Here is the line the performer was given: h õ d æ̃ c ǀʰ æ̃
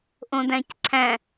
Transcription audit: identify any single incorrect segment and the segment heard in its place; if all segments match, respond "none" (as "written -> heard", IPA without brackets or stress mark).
h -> ʔ